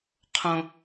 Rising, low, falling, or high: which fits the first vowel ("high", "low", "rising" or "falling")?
low